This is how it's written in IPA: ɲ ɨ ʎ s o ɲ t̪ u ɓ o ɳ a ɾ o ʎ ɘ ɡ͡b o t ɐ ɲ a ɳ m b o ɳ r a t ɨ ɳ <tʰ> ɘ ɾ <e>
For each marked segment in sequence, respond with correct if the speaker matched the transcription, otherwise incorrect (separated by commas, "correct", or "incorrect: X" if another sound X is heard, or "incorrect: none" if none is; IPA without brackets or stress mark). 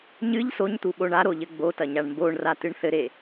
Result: incorrect: θ, correct